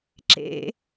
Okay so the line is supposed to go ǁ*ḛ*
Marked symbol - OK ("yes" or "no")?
yes